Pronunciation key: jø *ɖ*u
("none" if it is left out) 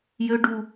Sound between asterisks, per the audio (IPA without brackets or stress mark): ɖ